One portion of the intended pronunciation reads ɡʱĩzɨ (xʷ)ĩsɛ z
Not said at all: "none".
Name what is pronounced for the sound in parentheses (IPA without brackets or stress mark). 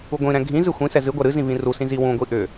xʷ